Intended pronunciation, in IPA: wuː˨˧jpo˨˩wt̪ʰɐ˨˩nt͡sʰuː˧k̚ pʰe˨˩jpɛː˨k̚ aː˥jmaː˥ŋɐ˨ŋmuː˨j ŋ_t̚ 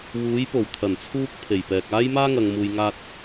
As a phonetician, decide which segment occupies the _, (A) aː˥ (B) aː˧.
B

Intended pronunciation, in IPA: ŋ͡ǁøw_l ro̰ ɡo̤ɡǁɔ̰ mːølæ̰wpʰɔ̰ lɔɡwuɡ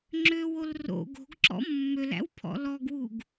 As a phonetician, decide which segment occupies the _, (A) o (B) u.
A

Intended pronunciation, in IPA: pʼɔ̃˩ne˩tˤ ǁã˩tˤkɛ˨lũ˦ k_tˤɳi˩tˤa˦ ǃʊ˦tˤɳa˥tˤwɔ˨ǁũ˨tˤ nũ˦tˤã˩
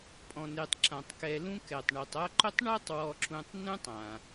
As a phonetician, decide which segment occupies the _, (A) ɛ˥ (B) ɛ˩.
B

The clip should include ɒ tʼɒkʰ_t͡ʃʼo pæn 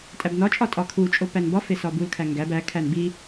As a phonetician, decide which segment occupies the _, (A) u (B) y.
A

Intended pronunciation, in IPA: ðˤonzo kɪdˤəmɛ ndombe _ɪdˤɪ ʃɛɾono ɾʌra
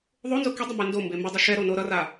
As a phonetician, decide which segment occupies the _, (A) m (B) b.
A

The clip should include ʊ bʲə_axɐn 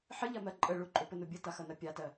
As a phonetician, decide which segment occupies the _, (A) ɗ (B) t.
B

